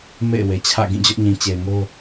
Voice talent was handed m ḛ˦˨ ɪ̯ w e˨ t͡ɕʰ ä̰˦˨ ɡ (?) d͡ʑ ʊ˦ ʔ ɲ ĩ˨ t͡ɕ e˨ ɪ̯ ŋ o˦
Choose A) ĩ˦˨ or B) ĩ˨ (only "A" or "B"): A